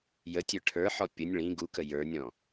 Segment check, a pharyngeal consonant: present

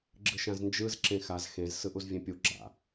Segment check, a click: present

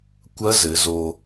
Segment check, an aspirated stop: absent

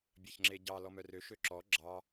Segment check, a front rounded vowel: present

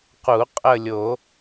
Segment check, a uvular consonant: present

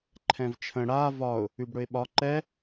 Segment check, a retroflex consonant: present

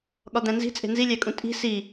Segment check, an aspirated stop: absent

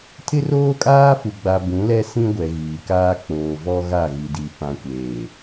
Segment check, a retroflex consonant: absent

